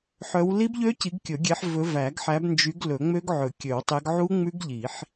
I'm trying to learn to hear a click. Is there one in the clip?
no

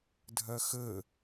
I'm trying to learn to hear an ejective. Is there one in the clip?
no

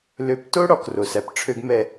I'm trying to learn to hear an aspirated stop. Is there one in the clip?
yes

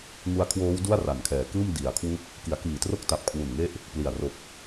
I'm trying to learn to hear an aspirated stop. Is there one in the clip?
yes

